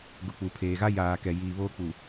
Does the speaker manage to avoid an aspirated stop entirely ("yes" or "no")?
no